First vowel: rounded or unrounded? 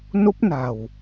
rounded